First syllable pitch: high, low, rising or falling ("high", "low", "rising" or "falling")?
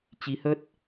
rising